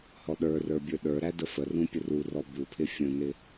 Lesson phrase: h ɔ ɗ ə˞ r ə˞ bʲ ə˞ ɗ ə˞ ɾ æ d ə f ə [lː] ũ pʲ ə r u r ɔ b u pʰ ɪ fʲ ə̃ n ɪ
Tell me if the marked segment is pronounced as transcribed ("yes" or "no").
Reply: no